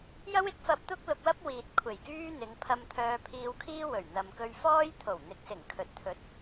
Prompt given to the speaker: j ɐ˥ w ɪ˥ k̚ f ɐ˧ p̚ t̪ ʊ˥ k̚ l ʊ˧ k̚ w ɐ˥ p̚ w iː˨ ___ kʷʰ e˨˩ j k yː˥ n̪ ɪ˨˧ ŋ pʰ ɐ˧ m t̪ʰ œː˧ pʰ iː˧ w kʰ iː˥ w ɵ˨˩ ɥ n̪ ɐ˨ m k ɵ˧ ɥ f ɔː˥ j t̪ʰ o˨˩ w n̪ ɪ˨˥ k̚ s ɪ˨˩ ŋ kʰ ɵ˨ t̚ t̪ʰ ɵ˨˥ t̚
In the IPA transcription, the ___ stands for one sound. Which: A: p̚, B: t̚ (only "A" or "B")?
B